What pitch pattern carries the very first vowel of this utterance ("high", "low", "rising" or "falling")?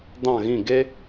falling